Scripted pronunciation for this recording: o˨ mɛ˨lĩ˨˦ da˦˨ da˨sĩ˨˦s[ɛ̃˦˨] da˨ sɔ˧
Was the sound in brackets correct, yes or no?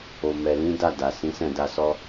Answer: yes